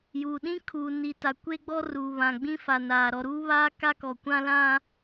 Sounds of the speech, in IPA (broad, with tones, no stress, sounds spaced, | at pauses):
j uː˨ ɗ ĩ˦ kʰ uː˨ n i˨ t a˨ kʷ e˦ ɡ͡b ɔ˦ r uː˨ β ã˨ ɡ͡b ĩ˦ f a˨ n aː˨ ɾ ɔ˨ ɾ uː˦ β aː˦ k a˦ k ɔ˨ kʷ ã˦ l ã˦